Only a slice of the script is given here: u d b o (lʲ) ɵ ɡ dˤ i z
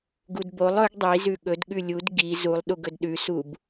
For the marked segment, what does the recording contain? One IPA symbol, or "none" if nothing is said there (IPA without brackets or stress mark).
lˠ